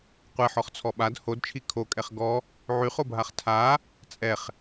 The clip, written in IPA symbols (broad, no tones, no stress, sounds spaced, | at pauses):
qʷ ɛ ħ ɔ χ t͡sʰ ɔ ɓ a d h o d t͡ʃʰ i kʰ o kʼ ɛ χ ɡ ɔ | ʕ y χ o bʱ a χ tʰ a | t͡sʼ ɛ χ